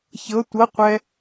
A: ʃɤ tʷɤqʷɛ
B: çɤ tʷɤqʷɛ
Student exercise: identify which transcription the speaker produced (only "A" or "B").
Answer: B